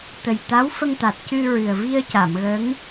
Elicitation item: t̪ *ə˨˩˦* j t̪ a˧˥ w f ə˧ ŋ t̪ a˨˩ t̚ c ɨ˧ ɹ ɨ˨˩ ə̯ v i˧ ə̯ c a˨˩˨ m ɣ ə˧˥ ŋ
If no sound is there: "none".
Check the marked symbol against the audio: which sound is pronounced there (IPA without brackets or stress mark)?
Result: ə˨˩